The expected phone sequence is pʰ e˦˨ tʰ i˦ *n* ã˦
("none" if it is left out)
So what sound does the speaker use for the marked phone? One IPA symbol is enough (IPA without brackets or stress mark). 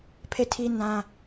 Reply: n